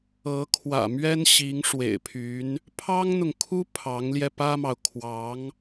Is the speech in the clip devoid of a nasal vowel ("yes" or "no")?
yes